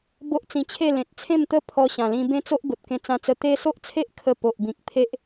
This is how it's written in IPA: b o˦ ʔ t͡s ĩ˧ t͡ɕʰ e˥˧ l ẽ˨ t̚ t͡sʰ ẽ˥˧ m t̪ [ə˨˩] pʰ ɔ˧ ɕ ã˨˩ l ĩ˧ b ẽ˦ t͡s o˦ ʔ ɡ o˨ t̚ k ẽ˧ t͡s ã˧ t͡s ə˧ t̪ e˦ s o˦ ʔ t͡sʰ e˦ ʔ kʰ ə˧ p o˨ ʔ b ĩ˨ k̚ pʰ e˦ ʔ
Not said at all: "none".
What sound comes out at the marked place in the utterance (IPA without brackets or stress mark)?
ə˦